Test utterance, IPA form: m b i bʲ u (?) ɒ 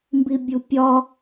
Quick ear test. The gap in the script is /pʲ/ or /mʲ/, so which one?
pʲ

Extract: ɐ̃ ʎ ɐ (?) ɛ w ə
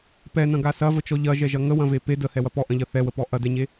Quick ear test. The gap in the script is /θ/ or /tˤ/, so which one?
θ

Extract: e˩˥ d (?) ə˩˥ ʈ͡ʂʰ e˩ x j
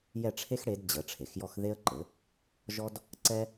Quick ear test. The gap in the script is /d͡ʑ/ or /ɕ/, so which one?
d͡ʑ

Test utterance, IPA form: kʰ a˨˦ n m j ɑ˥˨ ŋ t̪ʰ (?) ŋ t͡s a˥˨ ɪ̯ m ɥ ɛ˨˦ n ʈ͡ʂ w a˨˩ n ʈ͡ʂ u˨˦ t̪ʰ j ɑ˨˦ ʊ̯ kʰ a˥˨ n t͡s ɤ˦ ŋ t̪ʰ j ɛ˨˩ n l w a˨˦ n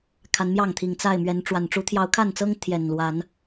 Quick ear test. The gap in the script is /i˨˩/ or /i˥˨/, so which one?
i˨˩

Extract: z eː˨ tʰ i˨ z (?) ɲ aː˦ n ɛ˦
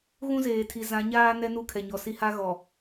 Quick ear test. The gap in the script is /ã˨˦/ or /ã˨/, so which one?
ã˨˦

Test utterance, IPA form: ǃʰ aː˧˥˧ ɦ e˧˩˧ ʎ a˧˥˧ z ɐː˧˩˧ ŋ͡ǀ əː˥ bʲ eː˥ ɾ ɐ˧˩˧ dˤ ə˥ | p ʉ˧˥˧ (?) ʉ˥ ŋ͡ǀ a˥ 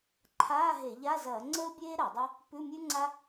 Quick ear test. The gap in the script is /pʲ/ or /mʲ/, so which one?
mʲ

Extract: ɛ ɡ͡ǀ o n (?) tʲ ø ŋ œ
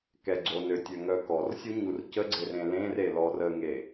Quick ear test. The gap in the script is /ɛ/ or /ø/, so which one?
ø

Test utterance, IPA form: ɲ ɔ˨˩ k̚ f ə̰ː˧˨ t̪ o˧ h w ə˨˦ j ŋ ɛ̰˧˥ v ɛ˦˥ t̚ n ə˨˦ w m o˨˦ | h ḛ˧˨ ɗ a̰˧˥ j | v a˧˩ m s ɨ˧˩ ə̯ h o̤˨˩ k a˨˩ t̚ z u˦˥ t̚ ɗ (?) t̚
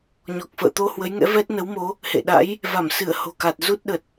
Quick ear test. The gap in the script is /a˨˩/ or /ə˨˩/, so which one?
ə˨˩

